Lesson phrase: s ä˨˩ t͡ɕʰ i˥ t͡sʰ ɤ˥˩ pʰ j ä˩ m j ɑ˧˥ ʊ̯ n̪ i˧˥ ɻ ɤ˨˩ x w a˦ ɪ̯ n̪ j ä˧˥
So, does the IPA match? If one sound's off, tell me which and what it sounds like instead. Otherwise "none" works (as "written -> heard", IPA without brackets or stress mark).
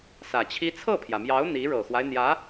none